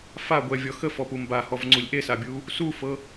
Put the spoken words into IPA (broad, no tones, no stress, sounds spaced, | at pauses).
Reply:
f a ɡʷ ɛ vʲ ɔ x ə f ɔ p u m b a h ɔ v ŋ͡ǀ u lʲ ʔ e s a bʲ u | s u f ɤ